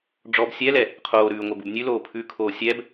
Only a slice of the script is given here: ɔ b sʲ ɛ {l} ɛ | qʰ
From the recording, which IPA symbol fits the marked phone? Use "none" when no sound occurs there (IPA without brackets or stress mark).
l